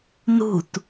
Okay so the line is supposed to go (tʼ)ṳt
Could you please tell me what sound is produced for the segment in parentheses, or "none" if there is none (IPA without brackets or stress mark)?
n